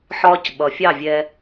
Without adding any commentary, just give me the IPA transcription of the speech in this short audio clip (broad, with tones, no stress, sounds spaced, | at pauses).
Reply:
ħ ɒː˧ c ɓ ʌ˨ fʲ ɑ˦˨ vʲ ɛ˧